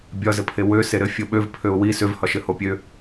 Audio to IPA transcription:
bʲ ɒ z ɘ pʰ e w ø s e ɾ ɘ fʲ o ɓ ø v pʰ ø ʊ̯ w i s ø v h ɒ ʃ ɘ h o pʲ ø

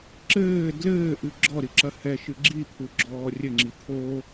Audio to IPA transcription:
ǁ ɘː d l ɘː ʔ ɨ ɡ͡ǁ ɔ ɾ i ǁ ɐ h ɛ ʃ ɨ ɡ͡ǁ i t̪ʰ u ɡ͡ǁ ɔː rʲ ɘ ŋ͡ǁ i t̪ʰ o

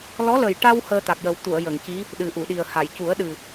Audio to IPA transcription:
l ɔ˧˥ l ə˨˩ j ʈ a˧ w h əː˧ t̪ a˨˩ k̚ j ə˨˩ w t̪ u˨˩˨ ə̯ j ə˨˩˨ ŋ c i˧˥ | ɗ ɨ˨˩ ʔ u˨˩˨ ɗ i˨˩ ə̯ h a˨˩˨ j c u˨˩˦ ə̯ ɗ ɨ˨˩

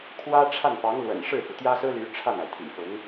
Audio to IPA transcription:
kʰ w ä˥ ʈ͡ʂʰ a˥˩ n f ɑ˧˥ ŋ l w ə̰˨˩ n ʂ ɻ̩˥˩ f u˩ t̪ j ä˥ s ɹ̩˥ l y˧˥ ʈ͡ʂʰ a˥˩ n a˩ ɪ̯ t̪ʰ ḭ˨˩ f ʊ˧˥ ŋ

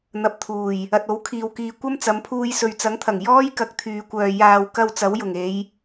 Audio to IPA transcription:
n̪ ɐ˨ p̚ t̪ʰ uː˨˩ j | ɐ˨ t̚ o˨˥ w kʰ iː˨ w k iː˨ kʷ ɐ˥ m t͡s ɐ˨˧ m pʰ uː˧ j s ɵ˨ ɥ t͡s ɐ˨˥ ŋ t̪ʰ ɐ˨˩ ŋ j ɔː˥ j k ɐ˧ k̚ t̪ʰ yː˨ kʷ œː˨ j aː˨ w k ɐ˧ w t͡s ɐ˨˥ w j ʊ˨˩ ŋ e˨˧ j

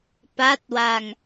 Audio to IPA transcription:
p a˦˥ t̚ w a˧ ŋ

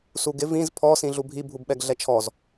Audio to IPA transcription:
s u ɡ ɪ v ĩ z pʰ ɔ s ĩ ɮ u bʱ i bʱ u b ɓ ɛ ɡ ɮ ɛ t͡ʃʰ ɔ z

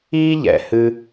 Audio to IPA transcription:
iː˥ ʎ ɛ̰˨ h ɨ˥

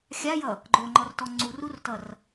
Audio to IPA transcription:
xʲ a j ʌ | ɡ͡ǃ o ŋ͡ǃ ɔ r t ɔ ŋ͡ǀ u r u r t ʌ r

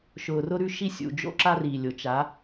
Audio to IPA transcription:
ʃ ʊː˨ r ʊ˦ ɾ ʉ˦ ʃ i˦ sʲ ṵ˨ d͡ʒ o̰˦ ǁ a˦ r iː˨ lʲ o˨ t͡ʃ a˨˦

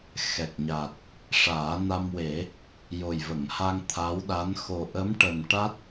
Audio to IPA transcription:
x ɛ˨˩ k̚ ɲ a˨˩ t̚ | ʂ aː˨˩˦ n a˧ m w e˨˩˦ | j o˨˩ j v ə˨˩˨ ŋ h a˧ ŋ t̪ʰ a˧˥ w ɗ a˧˥ n x o˨˩ ʔ ə˧˥ m ʈ ə˨˩ m ʈ a˦˥ t̚

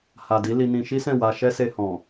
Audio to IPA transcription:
h a˨ d i˨˦ l i˧ n ĩ˧ ʃ i˦ s ɛ̃˦˨ w a˧ ʃ ɛ˦ s e˧ h ɔ̃˨

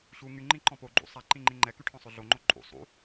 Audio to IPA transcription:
ɕ u ŋ y ŋ͡ǃ ĩ ǃ ɔ̃ p o ɡ͡ǃ ṵ sˤ a ǃ ĩ ŋ͡ǃ ĩ ŋ͡ǃ ɛ k y ʈʰ ɔ̃ sˤ ø ɮ o ŋ͡ǃ o ǃʼ ṵ sˤ ṵ

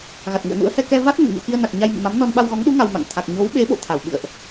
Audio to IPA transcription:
ɣ a˨˩ t̚ ŋ ṵ˧˨ ə̯ n ṵ˧˥ ə̯ h ɛ˧ k ɛ˧ v a˦˥ t̚ n ə̰˧˨ n ɲ o̰˧˨ x i˧ ə̯ n a˨˩ k̚ ɲ a˧ j m ɨ̰˧˨ m a˨˦ m n ɔ˧ n ɓ a˧ w ɣ ɔ˨˦ ŋ ɗ u˨˦ ŋ a˧ w m a̰˧˨ ŋ t̪ʰ a˨˩ k̚ ɲ o˨˦ w ɓ e˨˦ ɓ o̰˧˨ t̪ʰ a˧˩ w ɓ ɨ̰˧˨ ə̯ ʔ

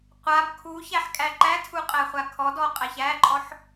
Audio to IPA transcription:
qʷ a b kʰ u ç æ ħ kʼ æ ǃ æ tʰ u qʼ æ χʷ a kʰ ɔ d ɔ qʼ æ ç æ ǃʼ ɔ ħ

